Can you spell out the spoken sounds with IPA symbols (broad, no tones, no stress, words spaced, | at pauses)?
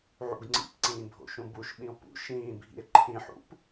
ʕṵɡŋ͡ǀḭpǀĩː bʱo̰ʃũbuʃɓĩo̯ pṵ ʃĩːbʱḭe̯ ǃʰĩħṵp